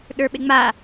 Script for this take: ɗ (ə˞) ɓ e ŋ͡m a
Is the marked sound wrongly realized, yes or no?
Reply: no